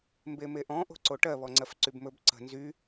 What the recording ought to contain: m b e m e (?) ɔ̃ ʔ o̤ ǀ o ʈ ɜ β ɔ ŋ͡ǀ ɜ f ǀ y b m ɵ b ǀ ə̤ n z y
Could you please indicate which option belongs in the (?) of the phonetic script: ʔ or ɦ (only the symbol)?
ʔ